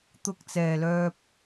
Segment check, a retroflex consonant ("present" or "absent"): absent